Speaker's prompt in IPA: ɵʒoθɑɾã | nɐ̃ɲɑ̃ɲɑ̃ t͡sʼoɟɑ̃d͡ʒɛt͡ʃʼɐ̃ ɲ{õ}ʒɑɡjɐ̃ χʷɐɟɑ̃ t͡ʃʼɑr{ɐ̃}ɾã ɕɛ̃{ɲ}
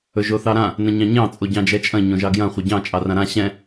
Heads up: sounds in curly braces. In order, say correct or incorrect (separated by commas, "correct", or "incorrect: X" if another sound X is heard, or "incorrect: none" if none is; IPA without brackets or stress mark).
correct, incorrect: ã, incorrect: none